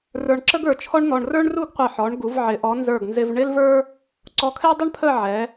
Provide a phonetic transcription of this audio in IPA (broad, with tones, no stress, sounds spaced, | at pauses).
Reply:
r ə˞˧ ɳ ǁ ə˥ ɡ ə˞˩˧ t͡ʃʰ ɔ˥ ɳ n̪ ɔ˧ ɳ r ə˞˥ ɳ r u˥˧ ɡ qʷ ɪ˧˩ ħ ɔ˩˧ ɳ ɡ u˩˧ v ʕ ɪ˩˧ ʔ ɔ˩˧ n z ə˞˧˩ ɡ n z ɪ˧ v ɳ ɪ˥ l v ə˞˥ | ǀ ɔ˧ kʰ ɛ˥ dˤ ɪ˥ ɳ pʰ ə˥˧ ʕ ɛ˩˧